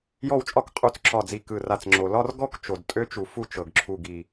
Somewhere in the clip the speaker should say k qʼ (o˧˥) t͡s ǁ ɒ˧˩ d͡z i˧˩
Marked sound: incorrect: u˧˥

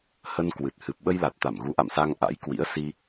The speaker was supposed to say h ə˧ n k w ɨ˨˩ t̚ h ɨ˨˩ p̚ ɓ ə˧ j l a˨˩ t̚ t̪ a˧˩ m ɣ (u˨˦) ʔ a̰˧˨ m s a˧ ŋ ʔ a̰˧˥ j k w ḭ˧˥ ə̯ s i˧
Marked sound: correct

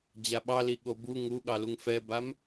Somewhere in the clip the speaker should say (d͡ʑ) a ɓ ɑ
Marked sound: correct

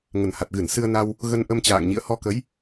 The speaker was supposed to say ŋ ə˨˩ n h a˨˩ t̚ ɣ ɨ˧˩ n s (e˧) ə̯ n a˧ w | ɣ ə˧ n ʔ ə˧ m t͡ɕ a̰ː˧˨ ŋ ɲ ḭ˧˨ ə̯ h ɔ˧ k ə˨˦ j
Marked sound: incorrect: ɨ˧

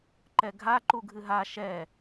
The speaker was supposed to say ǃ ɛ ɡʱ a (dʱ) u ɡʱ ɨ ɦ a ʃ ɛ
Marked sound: incorrect: ǃ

